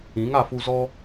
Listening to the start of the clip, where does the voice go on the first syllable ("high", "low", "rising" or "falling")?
rising